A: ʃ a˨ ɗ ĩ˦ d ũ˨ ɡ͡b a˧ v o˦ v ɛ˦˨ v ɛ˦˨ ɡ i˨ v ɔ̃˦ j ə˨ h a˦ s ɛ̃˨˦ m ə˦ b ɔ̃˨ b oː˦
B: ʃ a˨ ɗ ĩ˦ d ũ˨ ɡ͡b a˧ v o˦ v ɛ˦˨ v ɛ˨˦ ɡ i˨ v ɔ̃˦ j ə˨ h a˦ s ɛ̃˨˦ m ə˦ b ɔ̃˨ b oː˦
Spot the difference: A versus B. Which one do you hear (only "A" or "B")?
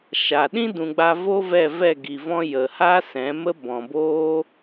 A